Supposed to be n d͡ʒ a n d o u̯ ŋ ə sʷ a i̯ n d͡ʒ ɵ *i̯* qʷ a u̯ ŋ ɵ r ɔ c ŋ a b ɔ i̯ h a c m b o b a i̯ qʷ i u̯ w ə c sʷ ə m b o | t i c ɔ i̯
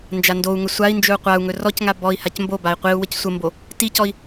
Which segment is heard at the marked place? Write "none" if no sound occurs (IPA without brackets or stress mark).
u̯